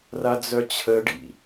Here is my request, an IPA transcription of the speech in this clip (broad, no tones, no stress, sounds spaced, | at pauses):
r a d͡z œ t͡ɕʰ ə ɖ ḭ